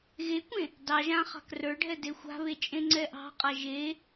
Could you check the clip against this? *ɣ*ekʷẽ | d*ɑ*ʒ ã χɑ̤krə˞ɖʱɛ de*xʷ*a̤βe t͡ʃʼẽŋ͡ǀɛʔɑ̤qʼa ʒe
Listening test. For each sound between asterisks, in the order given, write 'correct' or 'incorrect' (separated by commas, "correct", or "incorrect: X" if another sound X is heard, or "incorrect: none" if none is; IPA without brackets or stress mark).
correct, correct, correct